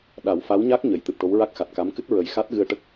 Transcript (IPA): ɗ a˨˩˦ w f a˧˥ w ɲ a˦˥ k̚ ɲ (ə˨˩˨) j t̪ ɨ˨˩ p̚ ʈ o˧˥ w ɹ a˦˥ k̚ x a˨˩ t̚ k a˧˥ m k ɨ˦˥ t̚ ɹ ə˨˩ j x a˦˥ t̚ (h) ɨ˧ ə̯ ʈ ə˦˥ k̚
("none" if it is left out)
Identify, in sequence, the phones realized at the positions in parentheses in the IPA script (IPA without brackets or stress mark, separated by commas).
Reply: ə˨˩˨, ɣ